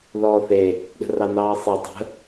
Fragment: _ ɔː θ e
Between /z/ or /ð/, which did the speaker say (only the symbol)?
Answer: ð